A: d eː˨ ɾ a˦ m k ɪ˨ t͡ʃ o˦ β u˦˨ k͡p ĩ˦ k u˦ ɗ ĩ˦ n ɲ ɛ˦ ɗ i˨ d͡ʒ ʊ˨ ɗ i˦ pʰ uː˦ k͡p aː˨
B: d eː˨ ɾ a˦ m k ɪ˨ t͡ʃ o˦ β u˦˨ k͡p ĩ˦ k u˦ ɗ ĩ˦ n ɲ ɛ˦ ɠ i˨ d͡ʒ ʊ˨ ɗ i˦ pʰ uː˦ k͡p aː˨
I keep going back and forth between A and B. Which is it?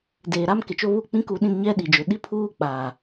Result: A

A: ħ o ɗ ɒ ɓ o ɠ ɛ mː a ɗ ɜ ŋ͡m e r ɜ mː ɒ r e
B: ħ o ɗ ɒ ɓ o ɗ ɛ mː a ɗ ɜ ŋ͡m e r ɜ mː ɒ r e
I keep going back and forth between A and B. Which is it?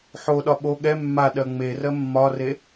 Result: A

